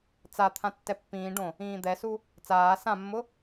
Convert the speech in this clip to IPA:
t͡s a t̪ʰ ã tː ɛ pː ĩː ɖ õ | ĩː d̪ ɛ s u | t͡s aː s ã mː ʊ

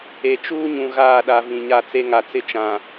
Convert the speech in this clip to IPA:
e˨ t͡ʃ uː˦ ɲ ũ˨ ɣ aː˦˨ ɗ a˨ v ĩ˨ ɲ a˦˨ t͡s e˦ ŋ a˨ t͡s ɪ˦ t͡ʃ ã˨

